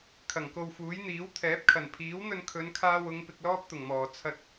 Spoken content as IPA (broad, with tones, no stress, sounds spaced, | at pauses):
kʰ ɐ˨˩ ŋ k o˧ w f uː˨˥ j n̪ iː˨˥ w t̪ʰ ɛː˨˥ p̚ kʰ ɐ˨˩ n pʰ iː˨˥ w n̪ ɵ˧ n kʰ ɵ˨˧ n kʰ aː˧ w ʊ˨˧ ŋ p ɪ˧ k̚ l ɔː˥ p̚ t̪ ʊ˨˩ ŋ m ɔː˨˩ t͡sʰ ɐ˧ t̚